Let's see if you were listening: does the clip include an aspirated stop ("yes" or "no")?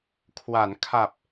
yes